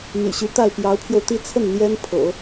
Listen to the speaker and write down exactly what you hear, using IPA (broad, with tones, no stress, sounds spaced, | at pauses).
m y̰˨˩ ɕ y˧˥ t̪ a˥˩ ɪ̯ p j ɑ˧˥ ʊ̯ pʰ j o˧ ʊ̯ t̪ i˥˧ t͡sʰ ə˥˩ n n̪ j ɛ˥ n pʰ ɤ̰˨˩˦